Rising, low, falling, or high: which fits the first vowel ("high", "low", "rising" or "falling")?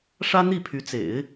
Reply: high